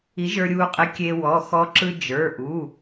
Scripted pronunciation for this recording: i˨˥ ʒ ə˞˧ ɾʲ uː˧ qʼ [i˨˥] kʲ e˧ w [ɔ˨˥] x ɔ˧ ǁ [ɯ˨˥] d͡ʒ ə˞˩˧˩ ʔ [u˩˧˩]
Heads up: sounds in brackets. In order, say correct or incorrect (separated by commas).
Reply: correct, incorrect, incorrect, correct